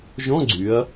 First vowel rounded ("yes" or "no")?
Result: yes